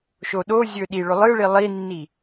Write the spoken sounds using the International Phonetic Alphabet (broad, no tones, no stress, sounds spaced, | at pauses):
ʃ o ɗ o zʲ ɵ ɗ i ɭ ɵ lˠ ɨ ɭ i lˠ i nː i